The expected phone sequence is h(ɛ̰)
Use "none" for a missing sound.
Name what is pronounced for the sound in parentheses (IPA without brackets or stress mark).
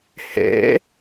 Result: ɛ̰